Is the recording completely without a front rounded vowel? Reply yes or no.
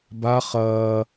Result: yes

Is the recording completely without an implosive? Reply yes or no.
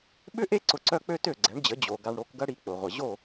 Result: no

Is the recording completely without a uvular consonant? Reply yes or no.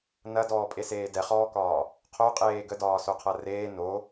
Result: no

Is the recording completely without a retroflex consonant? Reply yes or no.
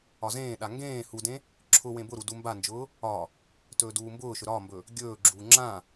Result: yes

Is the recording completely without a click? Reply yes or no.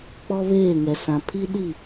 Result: yes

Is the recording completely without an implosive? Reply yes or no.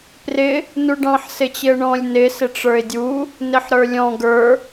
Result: yes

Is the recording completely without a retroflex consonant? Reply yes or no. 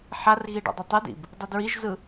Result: no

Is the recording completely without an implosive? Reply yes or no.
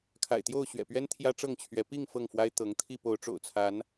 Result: yes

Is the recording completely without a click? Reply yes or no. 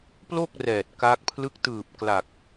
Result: yes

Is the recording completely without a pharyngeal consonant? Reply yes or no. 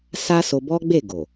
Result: yes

